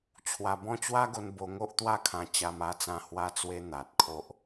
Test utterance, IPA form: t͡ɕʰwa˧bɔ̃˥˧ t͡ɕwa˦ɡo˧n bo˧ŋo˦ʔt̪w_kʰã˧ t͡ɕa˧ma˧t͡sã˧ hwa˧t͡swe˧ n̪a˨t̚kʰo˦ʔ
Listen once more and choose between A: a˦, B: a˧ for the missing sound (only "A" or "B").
A